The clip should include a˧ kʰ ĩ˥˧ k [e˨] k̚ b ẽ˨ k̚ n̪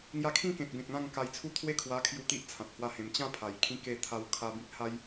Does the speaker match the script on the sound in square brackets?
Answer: no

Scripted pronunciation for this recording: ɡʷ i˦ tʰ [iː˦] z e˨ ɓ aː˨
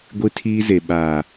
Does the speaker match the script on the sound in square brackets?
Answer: yes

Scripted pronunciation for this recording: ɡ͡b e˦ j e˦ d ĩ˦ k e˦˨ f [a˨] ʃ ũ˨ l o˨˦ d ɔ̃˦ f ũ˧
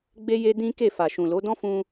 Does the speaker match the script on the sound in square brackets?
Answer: yes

